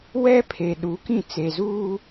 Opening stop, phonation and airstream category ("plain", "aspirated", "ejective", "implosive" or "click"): aspirated